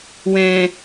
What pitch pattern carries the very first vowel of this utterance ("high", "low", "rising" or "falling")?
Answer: low